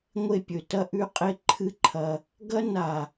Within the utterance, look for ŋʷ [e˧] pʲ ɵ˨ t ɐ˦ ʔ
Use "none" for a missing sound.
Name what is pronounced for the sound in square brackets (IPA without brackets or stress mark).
e˦˨